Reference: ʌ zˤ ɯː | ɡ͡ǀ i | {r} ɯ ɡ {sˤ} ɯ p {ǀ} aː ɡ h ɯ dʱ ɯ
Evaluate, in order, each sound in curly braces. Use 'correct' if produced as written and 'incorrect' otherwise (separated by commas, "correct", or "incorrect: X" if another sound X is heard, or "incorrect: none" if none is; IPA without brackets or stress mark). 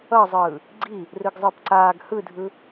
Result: correct, incorrect: zˤ, correct